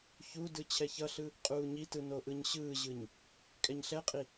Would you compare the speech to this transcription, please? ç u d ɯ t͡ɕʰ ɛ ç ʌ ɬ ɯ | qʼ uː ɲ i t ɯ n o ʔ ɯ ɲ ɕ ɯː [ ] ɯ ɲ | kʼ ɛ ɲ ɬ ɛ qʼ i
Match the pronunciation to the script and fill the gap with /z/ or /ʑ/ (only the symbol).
ʑ